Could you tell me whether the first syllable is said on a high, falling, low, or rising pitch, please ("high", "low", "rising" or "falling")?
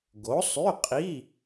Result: rising